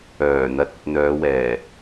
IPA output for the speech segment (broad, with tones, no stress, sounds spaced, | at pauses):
œː˨˩ n̪ ɐ˨ t̚ ɵ˨ t̚ n̪ œː˨˧ w ɛː˨˩